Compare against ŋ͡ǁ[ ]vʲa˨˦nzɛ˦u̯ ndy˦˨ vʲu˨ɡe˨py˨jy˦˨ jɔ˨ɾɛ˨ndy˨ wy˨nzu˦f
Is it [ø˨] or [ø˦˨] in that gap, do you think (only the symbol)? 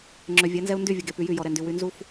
ø˨